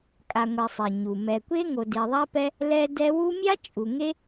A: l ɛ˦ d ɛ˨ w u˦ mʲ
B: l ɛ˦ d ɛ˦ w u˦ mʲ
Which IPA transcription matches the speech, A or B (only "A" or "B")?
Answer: B